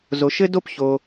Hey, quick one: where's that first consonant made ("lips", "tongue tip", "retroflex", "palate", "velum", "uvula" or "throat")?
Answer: tongue tip